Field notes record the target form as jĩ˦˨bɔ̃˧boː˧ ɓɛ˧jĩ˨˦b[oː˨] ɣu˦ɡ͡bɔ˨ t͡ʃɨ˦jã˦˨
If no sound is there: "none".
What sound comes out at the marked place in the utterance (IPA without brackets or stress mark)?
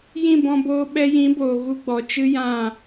oː˨